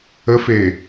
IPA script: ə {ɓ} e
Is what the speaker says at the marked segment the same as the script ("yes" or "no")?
no